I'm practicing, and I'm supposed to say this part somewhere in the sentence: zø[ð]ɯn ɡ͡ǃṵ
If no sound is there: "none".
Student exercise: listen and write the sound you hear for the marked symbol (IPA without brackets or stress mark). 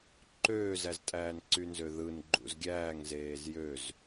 ð